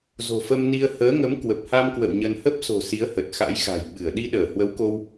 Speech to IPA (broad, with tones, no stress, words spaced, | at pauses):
zo̤˨˩fə˧mni˧ə̯ həː˨˦ŋə˨˦m kwə˨˩p̚ha˧mkwə̰˧˨w ɲə˧n hə˦˥p̚so̤˨˩ si˨˦ə̯hə˨˩t̚xa̰˧˥jxa̤˨˩j ɓɨ˧˩ə̯ ɗi˧ɗəː˧˩hwə˨˦wko˧w